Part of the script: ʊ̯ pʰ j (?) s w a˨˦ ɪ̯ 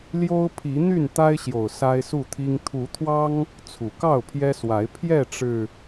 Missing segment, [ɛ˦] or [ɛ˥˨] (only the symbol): ɛ˦